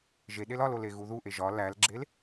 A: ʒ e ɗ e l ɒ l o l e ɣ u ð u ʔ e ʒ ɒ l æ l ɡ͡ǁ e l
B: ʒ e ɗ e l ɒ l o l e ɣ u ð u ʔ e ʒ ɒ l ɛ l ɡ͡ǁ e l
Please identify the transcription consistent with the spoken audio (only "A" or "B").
A